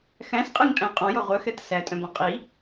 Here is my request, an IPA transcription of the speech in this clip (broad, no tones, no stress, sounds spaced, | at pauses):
x æ̃ s qʼ e ŋ tʼ æ̃ qʼ ɔ̃ j ɔ ʁʷ œ x ɛ t s æ tʼ œ̃ b ɔ̃ qʼ i